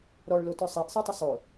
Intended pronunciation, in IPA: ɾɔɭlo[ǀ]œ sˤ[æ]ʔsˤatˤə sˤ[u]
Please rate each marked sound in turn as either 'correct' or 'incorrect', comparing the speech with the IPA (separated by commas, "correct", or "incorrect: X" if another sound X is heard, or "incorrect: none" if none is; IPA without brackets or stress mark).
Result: incorrect: t, correct, incorrect: o